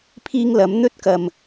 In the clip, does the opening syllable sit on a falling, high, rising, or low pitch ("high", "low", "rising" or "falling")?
high